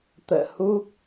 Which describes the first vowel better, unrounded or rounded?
unrounded